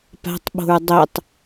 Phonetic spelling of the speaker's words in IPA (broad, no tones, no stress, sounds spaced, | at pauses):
p a̤ tˤ ɓ o̤ ɹ dˤ œ tˤ